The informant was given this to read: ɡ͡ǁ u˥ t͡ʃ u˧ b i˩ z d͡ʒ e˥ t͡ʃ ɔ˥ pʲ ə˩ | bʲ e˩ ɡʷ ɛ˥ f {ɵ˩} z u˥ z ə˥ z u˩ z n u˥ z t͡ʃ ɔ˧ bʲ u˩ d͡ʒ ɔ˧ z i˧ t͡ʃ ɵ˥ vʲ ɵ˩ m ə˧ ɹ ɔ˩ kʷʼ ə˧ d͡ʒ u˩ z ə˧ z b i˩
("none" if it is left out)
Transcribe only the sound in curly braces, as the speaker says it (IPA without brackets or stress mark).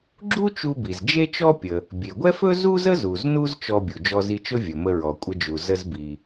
ɵ˥